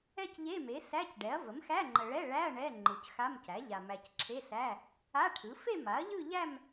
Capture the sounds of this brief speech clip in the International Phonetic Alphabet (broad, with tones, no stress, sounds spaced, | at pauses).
ɛ˥˧ c ʎ e˧˥˧ m e˩˥ s æ˧˥˧ c ɖ ɛ˩˥ ɐ̯ v ə˩˥ m x æ˧˥˧ ŋ͡ǃ ə˨ ɭ ɛ˧˥˧ ɭ æ˧˥˧ ɐ̯ ɳ ɛ˧˥˧ ŋ͡ǃ ɯ˨ c x a˧˥˧ m c æ˩˥ ʎ a˨ m æ˨ c ǁʰ e˧˥˧ s æ˧˥˧ | a˧˥˧ ʈʰ ɯ˩˥ f e˥˧ m a˩˥ ɐ̯ ʎ ɯ˥˧ ʎ æ˥˧ m